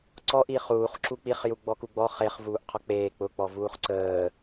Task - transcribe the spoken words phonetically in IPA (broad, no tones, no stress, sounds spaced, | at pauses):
ǀ ɔ ʔ i χ uː χ ǁ u k͡p i χ j u ɡ͡b ɔ k u ɡ͡b ɔ χ e χ v uː ʔ qʰ ɔ k͡p eː k͡p ʊ k͡p ɔ v uː χ ǀ əː